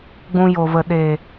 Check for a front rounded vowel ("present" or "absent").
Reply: absent